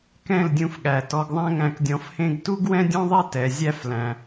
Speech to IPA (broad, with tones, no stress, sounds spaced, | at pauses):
k ɛ̃˦˨ l dʲ ũ˧ f ɠ æ˨ t ɔ˧ ɡ ðˤ æ̃˦ ŋ æ̃˧ k dʲ ɔ̃˧ f h ẽ˦ ɡ t u˦ ɡ w ɛ̃˦ dʲ ɔ̃˦ ðˤ ɛ˦ t ɛ˨ zʲ æ˦ f l æ̃˧